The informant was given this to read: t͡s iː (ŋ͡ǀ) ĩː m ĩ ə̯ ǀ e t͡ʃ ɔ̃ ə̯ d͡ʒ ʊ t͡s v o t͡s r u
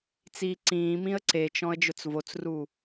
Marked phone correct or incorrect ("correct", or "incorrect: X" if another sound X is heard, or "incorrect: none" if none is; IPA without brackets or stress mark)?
incorrect: ǀ